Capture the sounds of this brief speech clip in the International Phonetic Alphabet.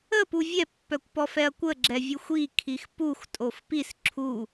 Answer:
əpu vʲɛpːœkʷpɔfɛɐ̯ kʷəɡ͡ǁɛvʲuxʷ ikʰix puxtʼof pis ǁʰu

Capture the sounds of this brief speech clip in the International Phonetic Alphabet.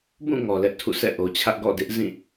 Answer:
bũ˦˨ ŋɔ˨lɛ˦ʔtʰṵ˦˨sɛ̰˦˨ ʔo˨t͡ɕʰä˦ʔɡɔ̰˦˨ dɪ˦ʔ zĩ˦˨

